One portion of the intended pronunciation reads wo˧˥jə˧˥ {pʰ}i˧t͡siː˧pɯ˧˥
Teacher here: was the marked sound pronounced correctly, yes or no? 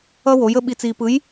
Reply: no